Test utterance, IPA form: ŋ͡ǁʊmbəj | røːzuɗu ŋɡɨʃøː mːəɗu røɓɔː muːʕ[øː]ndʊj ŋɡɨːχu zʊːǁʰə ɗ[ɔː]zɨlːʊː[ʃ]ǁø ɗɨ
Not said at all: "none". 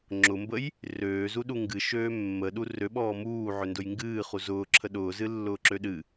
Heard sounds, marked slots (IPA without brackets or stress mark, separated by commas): ø, ʊː, none